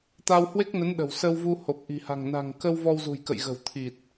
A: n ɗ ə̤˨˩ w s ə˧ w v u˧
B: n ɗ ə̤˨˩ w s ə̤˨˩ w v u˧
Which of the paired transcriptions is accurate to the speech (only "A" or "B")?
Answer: A